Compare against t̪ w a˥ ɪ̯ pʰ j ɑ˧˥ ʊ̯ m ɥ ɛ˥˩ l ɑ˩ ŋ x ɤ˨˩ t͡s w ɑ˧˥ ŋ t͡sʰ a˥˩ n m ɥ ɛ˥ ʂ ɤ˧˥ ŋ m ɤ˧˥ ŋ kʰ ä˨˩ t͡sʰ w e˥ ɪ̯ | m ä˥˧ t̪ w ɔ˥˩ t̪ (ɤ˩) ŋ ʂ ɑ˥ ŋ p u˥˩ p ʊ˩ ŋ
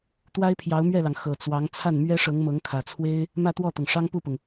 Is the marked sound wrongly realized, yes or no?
no